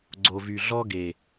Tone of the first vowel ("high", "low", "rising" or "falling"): low